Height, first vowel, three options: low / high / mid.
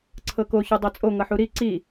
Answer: mid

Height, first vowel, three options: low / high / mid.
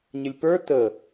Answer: mid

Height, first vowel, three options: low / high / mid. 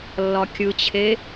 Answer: low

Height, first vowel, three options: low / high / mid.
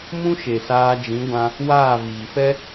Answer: high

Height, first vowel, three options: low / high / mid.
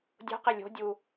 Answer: mid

